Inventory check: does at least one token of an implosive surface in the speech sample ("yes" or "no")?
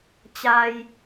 no